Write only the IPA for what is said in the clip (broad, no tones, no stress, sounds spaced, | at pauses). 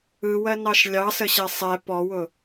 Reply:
ɯ w ɜ n ɑ ʃ lʲ ɑ s ə ɕ ɛ sˤ ɛ p ɔ w ʊ